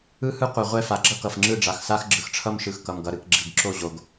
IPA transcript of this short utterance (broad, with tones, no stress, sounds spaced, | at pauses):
ɯ˦ h ɯ˦ qʷ ʌ˨ ʁʷ ɛ˦˨ f a˨ ɡ͡ǁ ʌ˦ k ʌ˨ f ŋ͡ǁ ɯ˦˨ ɖ͡ʐ a˨ x s a˦ x ɡ͡ǁ ɯ˨ x ʈ͡ʂʰ ʌ˦ m ʃ ɯ˨ x k ʌ˨ m ɡ ʌ˨ ɾ ɯ˨ k ɡ͡ǁ i˨ ɡ ǁ o˦˨ ʑ o˨ ɡ